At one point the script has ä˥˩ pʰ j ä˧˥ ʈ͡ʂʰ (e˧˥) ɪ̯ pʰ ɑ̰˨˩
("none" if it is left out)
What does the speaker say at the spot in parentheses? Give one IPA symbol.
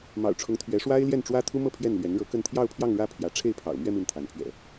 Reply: e˥˩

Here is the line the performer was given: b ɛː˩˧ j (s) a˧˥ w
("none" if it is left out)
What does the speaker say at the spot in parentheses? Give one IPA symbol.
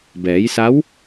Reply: s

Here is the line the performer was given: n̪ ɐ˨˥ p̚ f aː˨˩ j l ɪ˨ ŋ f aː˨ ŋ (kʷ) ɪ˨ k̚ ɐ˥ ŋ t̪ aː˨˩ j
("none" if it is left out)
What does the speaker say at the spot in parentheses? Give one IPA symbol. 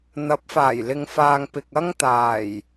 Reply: p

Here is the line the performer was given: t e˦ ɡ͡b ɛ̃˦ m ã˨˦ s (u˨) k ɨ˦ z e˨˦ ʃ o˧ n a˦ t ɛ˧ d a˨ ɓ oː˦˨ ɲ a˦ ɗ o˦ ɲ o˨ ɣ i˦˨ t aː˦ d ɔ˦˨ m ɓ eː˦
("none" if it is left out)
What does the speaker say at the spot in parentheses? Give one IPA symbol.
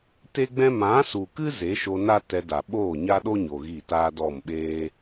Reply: u˨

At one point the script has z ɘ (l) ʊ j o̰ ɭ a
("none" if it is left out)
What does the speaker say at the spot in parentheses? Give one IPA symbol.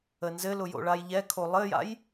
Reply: l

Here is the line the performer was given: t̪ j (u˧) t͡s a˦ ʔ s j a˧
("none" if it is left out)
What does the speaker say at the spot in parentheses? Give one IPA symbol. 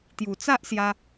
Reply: u˨˩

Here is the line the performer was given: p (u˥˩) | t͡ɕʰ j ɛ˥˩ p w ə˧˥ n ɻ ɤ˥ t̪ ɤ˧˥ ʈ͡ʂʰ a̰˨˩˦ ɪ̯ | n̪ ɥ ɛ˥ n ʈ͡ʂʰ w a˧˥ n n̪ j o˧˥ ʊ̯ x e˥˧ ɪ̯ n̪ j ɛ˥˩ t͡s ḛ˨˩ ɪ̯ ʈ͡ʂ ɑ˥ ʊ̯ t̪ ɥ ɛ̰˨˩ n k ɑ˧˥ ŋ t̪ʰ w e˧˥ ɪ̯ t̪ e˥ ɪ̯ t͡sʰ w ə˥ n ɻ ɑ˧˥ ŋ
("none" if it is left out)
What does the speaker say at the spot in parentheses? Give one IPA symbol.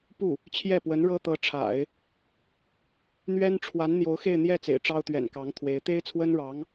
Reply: u˥˩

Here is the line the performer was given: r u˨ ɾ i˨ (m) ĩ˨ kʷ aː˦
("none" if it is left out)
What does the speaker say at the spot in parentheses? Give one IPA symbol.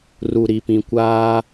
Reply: p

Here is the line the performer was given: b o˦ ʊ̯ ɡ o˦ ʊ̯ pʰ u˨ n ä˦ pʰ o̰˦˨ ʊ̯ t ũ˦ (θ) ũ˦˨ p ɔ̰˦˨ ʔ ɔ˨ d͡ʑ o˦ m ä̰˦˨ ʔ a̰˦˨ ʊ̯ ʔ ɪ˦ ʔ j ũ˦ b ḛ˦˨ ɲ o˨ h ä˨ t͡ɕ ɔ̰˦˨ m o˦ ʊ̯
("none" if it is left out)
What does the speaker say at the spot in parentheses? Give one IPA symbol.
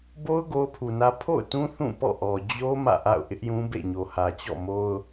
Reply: θ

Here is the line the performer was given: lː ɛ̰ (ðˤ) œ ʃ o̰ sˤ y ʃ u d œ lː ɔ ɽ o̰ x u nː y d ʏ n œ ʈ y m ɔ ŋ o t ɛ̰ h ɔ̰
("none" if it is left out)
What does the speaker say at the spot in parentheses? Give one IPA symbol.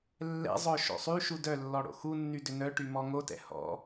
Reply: zˤ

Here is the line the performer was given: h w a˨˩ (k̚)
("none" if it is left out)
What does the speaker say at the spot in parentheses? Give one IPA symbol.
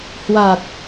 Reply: t̚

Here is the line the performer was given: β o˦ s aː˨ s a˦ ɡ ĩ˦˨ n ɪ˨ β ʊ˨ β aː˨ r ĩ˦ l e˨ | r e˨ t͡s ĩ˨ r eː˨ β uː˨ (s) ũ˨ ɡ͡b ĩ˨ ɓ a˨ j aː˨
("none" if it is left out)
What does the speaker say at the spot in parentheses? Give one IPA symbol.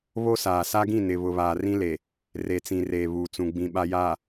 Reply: t͡s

